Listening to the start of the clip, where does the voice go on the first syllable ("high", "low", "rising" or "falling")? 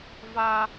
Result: high